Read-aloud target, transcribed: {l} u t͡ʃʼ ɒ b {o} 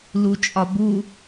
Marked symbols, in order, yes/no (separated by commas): yes, no